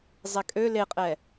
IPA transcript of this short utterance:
zˤ ɛ kʼ ø l e qʼ ɛ

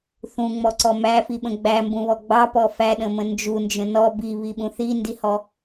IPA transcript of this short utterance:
θ ũ ŋ͡m ɔ ǀ ɔ m æ f i ɓ ə̃ ɡ͡b æ m b ũ β ɔ ɡ͡b ɑ p ɔ f æ ɗ ə̃ m ə̃ n d͡ʒ u n d͡ʒ ə̃ n ɔ b i β i ɓ ũ θ i n d i h ɔ

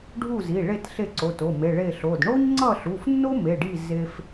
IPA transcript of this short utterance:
ɖʱ u˥˨ z i˩˧˩ ɭ e˥˨ t ɬ e˥˨ ǀ o˩˧˩ t o˩˧˩ m e˩˧˩ ɭ e˥˨ ɬ o˩˧˩ d ɳ o˥ ɲ ŋ͡ǀ ʌ˥˨ ɬ u˩˧˩ f nː o˥ m e˩˧˩ ɖ i˥˨ z e˥ f

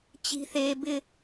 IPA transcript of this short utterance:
t͡ɕ i̤˦ θ eː˦ b ɪ˦

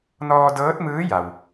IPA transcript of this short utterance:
n ɔː˧ d ɤː˧˥ t̚ m ɯː˧˥ j a˩ w

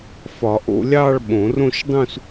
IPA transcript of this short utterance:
f ɒ˨˩˦ ʔ o̰˥˧ lʲ ɑ˥˧ ɭ ɓ õ˨˩˦ r õ˥˧ ʃ dˤ ũ˥˧ s

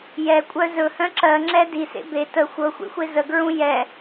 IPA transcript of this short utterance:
j ɛ kʷʼ œ z ɵ h œ̃ ǁ ɜ ŋ͡ǁ ɛ d i s ḛ b e t ə xʷ ɤ xʷ ḛ xʷ e z ə ɡ ɹ ũ j ɛ

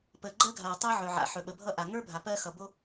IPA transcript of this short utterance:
p əː˩ ɡ͡ǃ ɜ˥ ɡʱ aː˩ tˤ ʌː˥ ʕ ɵ˩ ʕ a̰˩ ħ ɵ˩ ɓ ə˩ bʱ ʌ˥ ʔ a˩ ŋ ə˞˥ bʱ a˩ p ɜː˥ x ʌ˩ b o˥

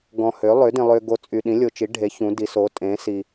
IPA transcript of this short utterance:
ɡ ɔ̃˨ h ø˩˥ lˠ ø˩˥ d ĩ˨ lˠ ø˨ ɡ o˨ t͡sʼ y˨ ɗ ĩ˩˥ lʲ o˨ t͡ʃ i˩˥ ɖʱ e˩˥ ç ũ˩˥ d i˩˥ s o˩˥ tʼ ẽ˩˥ s i˨

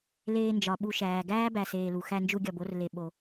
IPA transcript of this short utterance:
l eː˨ n d͡ʒ ɒ˩ ɓ u˨ ʃ æː˩ ɡ æː˥ b æ˨ s eː˨ l u˩ x æ˦ n d͡ʒ u˦ ɡʲ ɒ˨ b o˦ r l e˨ ɓ o˨

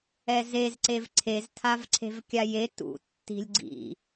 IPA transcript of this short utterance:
ɛ z e z ǀ e v ǀʰ e z tʰ a v ǀʰ e̤ v kʲ a j e t ṵ tː i̤ lʲ ɡ͡ǀ ḭ

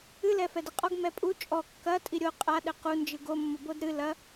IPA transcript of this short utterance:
ɨ l ɛ f ɛ d ɘ qʼ ɔ ɡ m ɛ pʼ u t͡ʃʼ ɔ kː ɐ tʼ i ɾʲ o qʼ a ɗ ɘ q u n d͡ʒ ɨ ɡ o mː o b o d ɾ ɨ l ɐ

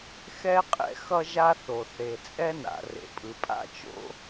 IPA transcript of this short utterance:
x ɛ˥ qʼ ɛ̰˥ x ʌ˥ ʒ a˥ θ o˩ θ e˩ t͡sʼ ɛ˥ n a̰˩ r ḛ˩ pʼ ɯ˩ pʼ a̰˥ t͡ʃ o̰˥

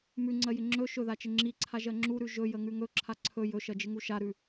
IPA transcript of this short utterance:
m ʉ ŋ͡ǀ ɜ j ɪ ŋ͡ǁ ɵ ʃ ɵ ð a t͡ʃ ɪ ŋ͡ǁ i ǀʰ a ʒ ɜ ŋ͡ǁ u ɾ ʉ ʒ ɵ j ə ŋ ʉ ŋ ɵ ǁʰ a ǀʰ ɵ j ɵ ʃ ɜ d͡ʒ ɪ ŋ u ʃ a ɾ ʉ

